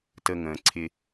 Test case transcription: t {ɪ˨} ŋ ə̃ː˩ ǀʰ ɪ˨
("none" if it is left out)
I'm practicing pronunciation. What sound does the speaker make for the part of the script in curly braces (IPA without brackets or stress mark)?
ə˨